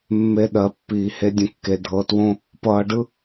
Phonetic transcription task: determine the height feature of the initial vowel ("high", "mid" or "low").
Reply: mid